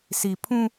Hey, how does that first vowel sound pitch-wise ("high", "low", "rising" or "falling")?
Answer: low